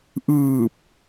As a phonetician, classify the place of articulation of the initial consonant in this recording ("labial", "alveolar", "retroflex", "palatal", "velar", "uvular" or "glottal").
glottal